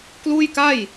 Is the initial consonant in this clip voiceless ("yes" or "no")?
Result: yes